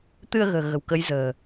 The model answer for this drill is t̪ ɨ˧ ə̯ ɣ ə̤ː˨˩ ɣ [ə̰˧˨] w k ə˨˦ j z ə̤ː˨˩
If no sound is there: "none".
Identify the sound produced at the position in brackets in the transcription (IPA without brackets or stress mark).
ə̤˨˩